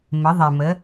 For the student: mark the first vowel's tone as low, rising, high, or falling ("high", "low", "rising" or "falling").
rising